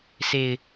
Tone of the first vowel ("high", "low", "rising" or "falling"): low